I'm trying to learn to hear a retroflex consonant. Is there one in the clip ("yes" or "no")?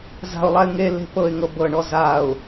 yes